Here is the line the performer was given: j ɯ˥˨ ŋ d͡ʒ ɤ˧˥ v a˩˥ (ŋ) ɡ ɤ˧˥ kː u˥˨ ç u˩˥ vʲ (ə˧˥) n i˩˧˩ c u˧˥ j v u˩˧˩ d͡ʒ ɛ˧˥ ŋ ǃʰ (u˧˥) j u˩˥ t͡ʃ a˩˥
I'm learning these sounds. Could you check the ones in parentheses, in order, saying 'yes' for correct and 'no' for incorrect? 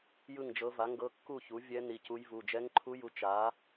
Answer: yes, no, yes

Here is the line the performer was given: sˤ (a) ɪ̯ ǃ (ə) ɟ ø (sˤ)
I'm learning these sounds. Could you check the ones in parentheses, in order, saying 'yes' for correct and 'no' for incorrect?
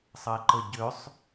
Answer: no, yes, yes

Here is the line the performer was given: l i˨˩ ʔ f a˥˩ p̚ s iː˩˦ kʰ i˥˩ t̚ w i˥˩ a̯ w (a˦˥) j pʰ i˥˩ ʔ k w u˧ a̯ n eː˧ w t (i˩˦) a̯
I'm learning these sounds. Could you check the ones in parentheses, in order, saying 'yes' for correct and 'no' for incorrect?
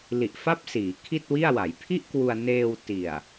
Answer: no, no

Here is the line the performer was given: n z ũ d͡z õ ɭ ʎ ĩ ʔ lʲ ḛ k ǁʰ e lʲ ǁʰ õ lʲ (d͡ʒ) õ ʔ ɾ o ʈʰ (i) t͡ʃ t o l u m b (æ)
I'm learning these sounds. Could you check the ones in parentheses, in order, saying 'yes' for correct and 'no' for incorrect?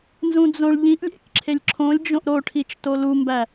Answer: yes, yes, yes

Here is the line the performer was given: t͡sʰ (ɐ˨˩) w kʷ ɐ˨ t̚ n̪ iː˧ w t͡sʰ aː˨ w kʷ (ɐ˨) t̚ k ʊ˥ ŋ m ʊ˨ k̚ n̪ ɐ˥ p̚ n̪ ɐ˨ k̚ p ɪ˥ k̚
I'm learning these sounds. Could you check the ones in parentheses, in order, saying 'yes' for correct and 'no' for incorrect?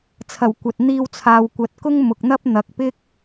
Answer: yes, no

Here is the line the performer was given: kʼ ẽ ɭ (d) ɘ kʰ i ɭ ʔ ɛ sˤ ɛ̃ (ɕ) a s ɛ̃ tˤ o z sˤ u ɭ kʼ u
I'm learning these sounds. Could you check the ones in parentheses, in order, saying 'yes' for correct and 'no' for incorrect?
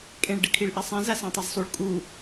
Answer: no, no

